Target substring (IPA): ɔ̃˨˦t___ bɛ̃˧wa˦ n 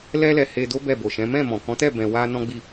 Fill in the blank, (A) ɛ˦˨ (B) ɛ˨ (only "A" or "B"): A